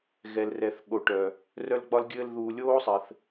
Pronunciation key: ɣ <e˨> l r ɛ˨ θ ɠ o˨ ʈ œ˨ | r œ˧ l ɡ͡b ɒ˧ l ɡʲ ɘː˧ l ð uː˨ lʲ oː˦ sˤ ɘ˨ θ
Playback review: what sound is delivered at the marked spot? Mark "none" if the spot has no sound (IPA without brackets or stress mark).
ɛ˨